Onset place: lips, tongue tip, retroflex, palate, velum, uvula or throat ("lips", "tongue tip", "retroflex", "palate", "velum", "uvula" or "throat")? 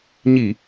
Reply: palate